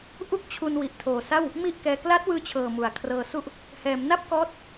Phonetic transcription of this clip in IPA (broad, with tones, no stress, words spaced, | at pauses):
ʔu˥˩k̚t͡ɕʰu˧n wi˨˩ʔtʰoː˨˩sa˥˩w | mi˥˩ʔkɛː˧ kla˦˥t̚wɯː˧t͡ɕʰɤː˨˩ mu˨˩a̯kʰrɤː˧su˥˩ʔ | hɛː˩˦mna˥˩p̚kɔː˦˥t̚